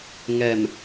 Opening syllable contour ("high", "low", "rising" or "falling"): low